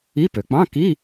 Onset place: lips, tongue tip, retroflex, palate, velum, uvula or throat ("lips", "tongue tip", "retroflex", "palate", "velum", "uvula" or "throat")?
lips